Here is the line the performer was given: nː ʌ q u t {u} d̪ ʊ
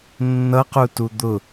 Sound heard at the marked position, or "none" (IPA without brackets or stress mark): u